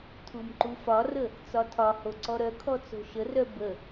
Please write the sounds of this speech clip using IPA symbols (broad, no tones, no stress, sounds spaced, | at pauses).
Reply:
tʰ u m ǃ u f ɒ r ə | t͡s ɒ tʰ ɒ h o ǀ ɔ ɾ œ kʰ ɔ t͡s o̤ ʃ ə r œ b ə